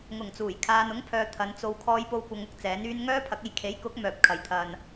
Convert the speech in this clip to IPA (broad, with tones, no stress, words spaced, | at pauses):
ŋʊ˨˩ŋt͡suː˨˩j kʰaː˨nʊ˨˥ŋpʰœː˨ t̪ʰɐ˨˧n t͡so˨w kʰɔː˧jpo˧wkʷɐ˨˧ŋʊ˧k̚ t͡sɛː˨˥nyː˥n ŋœː˥pʰɐ˨˥k̚e˧j kʰe˨˥jkʊ˨˥k̚ mœː˧p̚kʰɐ˧j t̪ʰɐ˧n